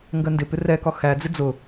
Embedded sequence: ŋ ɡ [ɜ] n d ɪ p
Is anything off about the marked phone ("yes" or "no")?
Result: no